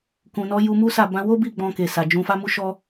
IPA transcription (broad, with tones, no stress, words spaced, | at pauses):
kũ˨nɔ˨˦ ju˧mu˦sa˦˨ bã˧wo˦bi˦˨ ɡ͡bɔ̃˧ke˨sa˨ d͡ʒũ˧fa˦mu˦ ʃɔ˧